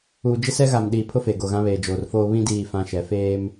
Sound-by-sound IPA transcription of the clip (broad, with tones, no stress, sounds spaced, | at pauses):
uː˨ d͡ʒ ɪ˦ s ɛ˦ ɣ a˨ m ɗ iː˨ pʰ ʊ˦ f e˨ ɡ o˨ ɣ ã˦ β eː˨ d͡ʒ oː˨ r f oː˦ β ĩ˦ d iː˦˨ f ã˦ ʃ ɛ˨˦ f eː˦ m